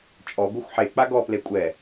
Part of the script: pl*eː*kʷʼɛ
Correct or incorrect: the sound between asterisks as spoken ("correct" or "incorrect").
incorrect